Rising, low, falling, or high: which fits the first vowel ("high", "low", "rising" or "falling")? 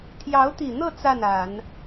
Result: rising